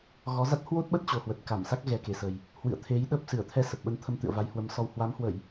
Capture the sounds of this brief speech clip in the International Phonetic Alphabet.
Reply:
ɣ ɔ˨˦ z a˦˥ t̚ h w o˦˥ t̚ ɓ ə˦˥ t̚ t͡ɕ o˨˩ h w ə˨˩ t̚ k a˧˩ m s a˦˥ k̚ ɣ ɛ˧ k e˨˩ s ə˨˩ j | h w ɨ̰˧˨ ə̯ t̪ʰ e˨˦ j ɗ ə˦˥ p̚ s ɨ˧˩ ə̯ t̪ʰ ɛ˧ s ə˨˩ p̚ ɓ ə˧ n t̪ʰ ə˧ m t̪ ɨ̰˧˨ ə̯ v a˨˦ j h w ə˨˦ m s ɔ˧ w h w a˨˦ m h w ə˧˩˨ j

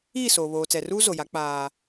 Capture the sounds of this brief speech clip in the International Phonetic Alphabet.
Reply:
iː˦˨ s o˨ β oː˨ t͡s ɛ˨ r uː˦ z o˨ j a˨˦ k͡p aː˨

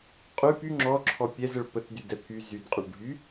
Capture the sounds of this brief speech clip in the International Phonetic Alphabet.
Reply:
qʼ y p y ŋ͡ǁ ɔ ǁʰ ɔ pʲ ɛ z ə ɭ p ə t d y d ɛ pʰ y z y d qʼ u ɭ ɖʱ y

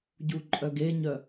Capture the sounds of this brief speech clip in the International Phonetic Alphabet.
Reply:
ɟ u ǃʼ œ ɡ e ɲ œ

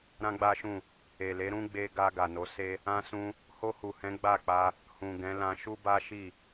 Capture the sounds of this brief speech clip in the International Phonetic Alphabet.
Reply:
ɾ ã˦ ɡ͡b a˦ ʃ ũ˦˨ | e˨ l e˨˦ ɾ ũ˦ ɡ͡b e˧ ɡ a˧ ɡ a˨ n o˨˦ s e˦ | ã˧ s ũ˧ | h o˧ h u˨ h ɛ̃˨˦ ɡ͡b a˦˨ k͡p a˧ | h ũ˨ ɡ ɛ̃˨˦ l ã˧ ʃ u˦ b a˦ ʃ i˦˨

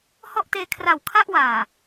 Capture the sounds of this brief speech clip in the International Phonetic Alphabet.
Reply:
h ɔ˥˩ ʔ t eː˧ kʰ r a˨˩ w kʰ a˥˩ ʔ w aː˨˩

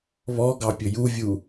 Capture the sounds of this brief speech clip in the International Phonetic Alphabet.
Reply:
β ɔ ɡ ɑ pʲ ɵ j u vʲ u

